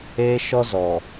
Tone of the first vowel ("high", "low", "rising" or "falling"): high